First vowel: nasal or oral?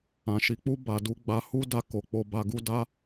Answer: nasal